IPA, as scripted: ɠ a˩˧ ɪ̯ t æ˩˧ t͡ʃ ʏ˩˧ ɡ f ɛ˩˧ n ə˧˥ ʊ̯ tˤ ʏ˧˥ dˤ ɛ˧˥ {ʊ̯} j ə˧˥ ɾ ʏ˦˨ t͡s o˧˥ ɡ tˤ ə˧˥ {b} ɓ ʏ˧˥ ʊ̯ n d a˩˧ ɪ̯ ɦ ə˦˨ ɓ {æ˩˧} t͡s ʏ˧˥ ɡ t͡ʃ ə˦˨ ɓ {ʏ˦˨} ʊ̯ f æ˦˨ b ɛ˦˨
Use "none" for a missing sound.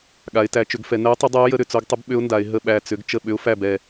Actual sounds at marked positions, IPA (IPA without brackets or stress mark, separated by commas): ʊ̯, b, æ˦˨, ʏ˧˥